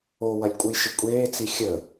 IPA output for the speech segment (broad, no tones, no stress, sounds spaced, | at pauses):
o w ɐ lʲ kʷʼ ə j ʃ ɪ kʷʼ eː t͡s i xʲ ə